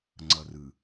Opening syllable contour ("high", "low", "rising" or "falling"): low